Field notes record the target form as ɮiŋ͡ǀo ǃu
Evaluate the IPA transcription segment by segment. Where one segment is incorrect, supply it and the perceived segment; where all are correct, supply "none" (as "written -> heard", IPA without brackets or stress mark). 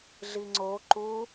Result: none